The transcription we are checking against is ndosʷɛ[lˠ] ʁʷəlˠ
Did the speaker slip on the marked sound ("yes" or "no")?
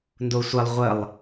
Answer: no